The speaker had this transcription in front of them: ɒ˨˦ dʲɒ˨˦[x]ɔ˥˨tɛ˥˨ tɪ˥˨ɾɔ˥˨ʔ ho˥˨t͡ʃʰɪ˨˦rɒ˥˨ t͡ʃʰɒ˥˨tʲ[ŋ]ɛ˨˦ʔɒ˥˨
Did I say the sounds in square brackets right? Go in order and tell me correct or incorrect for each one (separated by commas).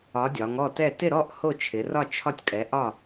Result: incorrect, incorrect